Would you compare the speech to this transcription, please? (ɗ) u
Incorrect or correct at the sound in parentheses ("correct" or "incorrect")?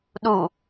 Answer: correct